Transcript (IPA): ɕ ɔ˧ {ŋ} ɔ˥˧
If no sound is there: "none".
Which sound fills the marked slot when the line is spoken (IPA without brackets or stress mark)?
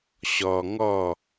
ŋ